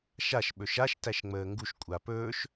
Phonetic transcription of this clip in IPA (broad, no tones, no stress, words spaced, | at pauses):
ʃaʃ ɓɵʃaʃ tæʃŋ͡məːŋɡuʃ kʷʼapɵːʃ